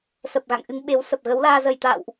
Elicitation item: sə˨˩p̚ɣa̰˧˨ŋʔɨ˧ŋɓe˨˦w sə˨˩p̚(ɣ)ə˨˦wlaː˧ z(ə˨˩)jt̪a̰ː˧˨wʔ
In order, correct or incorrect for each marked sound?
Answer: correct, correct

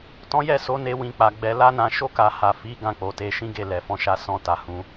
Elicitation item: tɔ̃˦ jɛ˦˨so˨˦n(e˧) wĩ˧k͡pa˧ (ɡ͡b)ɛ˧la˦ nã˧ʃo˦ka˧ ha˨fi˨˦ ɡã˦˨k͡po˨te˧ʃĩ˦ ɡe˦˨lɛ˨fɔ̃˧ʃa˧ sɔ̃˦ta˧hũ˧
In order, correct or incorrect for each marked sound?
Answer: correct, correct

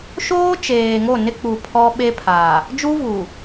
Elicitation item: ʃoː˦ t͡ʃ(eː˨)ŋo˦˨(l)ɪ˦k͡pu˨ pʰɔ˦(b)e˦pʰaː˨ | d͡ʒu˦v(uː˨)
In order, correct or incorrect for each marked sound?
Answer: correct, incorrect: n, incorrect: ɓ, correct

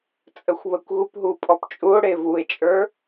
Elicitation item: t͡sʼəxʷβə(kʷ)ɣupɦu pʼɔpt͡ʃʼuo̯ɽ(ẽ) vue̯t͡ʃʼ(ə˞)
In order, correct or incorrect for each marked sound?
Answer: correct, incorrect: e, correct

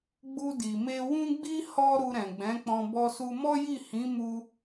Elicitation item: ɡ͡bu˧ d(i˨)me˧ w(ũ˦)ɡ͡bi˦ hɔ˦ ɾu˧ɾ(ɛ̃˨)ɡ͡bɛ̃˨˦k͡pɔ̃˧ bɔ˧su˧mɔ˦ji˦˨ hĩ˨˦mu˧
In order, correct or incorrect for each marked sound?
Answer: correct, correct, correct

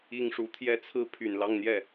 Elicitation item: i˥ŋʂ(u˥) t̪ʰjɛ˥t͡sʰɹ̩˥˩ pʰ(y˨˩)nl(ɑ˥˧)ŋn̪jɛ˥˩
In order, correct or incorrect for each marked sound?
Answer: incorrect: u˧˥, correct, correct

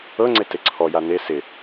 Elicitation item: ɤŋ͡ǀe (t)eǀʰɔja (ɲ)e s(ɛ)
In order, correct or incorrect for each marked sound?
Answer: correct, incorrect: n, incorrect: ɪ

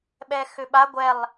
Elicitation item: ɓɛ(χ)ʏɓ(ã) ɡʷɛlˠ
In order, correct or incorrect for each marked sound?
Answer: incorrect: x, incorrect: a

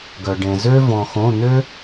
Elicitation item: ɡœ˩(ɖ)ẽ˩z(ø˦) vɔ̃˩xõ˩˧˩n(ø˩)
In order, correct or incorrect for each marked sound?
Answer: correct, correct, incorrect: ø˦

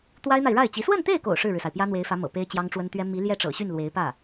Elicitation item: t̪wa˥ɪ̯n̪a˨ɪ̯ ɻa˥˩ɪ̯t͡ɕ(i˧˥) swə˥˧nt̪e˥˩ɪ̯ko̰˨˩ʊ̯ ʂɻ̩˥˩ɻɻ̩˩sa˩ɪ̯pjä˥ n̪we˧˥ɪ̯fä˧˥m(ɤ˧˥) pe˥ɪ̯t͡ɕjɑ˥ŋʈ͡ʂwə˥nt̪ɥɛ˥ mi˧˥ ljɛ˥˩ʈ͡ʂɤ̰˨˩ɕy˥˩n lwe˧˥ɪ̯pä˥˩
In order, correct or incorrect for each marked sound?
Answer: correct, incorrect: ɤ̰˨˩

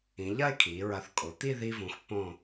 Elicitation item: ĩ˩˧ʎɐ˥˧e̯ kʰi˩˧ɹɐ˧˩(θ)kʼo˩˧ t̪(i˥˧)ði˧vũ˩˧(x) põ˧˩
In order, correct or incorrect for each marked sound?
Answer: correct, correct, correct

